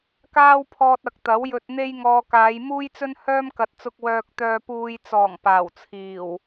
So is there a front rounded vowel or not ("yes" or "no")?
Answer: yes